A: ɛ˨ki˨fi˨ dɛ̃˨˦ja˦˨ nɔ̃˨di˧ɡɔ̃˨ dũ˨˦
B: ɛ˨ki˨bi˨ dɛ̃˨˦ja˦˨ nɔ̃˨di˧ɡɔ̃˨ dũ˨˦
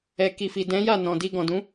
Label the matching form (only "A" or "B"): A